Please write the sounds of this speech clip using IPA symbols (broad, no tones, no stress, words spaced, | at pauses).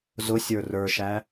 zʊsʲə˞ rə˞ʃæ